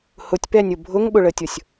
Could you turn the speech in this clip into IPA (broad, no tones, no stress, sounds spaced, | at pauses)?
h ʊ tʲ p ɛ nʲ ʊ bʱ ʊ ŋ ɓ ʊ ɭ ə tʲ ʊ sʲ